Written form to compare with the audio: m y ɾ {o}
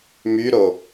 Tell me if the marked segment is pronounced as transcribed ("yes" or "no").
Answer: yes